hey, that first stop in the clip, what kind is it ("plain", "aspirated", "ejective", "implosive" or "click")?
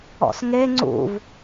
click